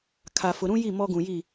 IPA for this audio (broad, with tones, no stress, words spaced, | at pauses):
kʰa˨fʊ˨ɾũ˦ji˦˨ mɔ˦ɡũ˨ji˦˨